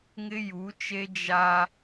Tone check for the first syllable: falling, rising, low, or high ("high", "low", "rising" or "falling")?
high